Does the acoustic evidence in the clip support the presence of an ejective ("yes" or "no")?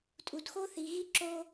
yes